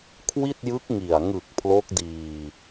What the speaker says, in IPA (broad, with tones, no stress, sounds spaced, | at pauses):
kʰ w i˥˩ t̚ j ɯ˦˥ k̚ ŋ i˨˩ a̯ ŋ ɯ˨˩ k̚ pʰ l o˦˥ k̚ d iː˧